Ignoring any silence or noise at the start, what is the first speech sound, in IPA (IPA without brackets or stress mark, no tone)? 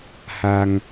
h